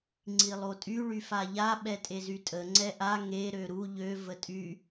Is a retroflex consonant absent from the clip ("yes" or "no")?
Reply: no